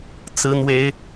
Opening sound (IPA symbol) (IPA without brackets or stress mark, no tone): t͡s